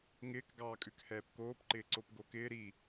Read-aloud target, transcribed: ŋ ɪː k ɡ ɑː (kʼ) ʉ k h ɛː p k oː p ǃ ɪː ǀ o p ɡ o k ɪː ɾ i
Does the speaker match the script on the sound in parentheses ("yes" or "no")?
yes